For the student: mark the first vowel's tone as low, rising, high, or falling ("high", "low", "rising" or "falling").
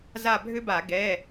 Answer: falling